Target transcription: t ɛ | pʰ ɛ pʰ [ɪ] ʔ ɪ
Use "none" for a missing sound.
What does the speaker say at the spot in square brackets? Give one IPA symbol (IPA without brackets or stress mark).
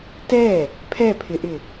ɪ